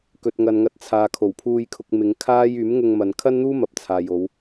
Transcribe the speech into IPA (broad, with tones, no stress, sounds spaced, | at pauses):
k ɵ˨ t̚ ŋ ɐ˨ n ŋ ɐ˧ t̚ t͡sʰ aː˨ kʰ o˨˩ w pʰ uː˧ j kʰ ʊ˨ k̚ m ɪ˨˧ ŋ kʰ aː˥ j yː˨˥ m ŋ ʊ˧ ŋ m ɐ˨ n kʰ ɐ˥ n n̪ uː˥ m ɐ˨ p̚ t͡sʰ aː˨ j o˨˧ w